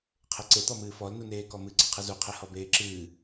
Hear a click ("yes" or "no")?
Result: yes